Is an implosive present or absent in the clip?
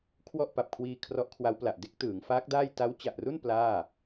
absent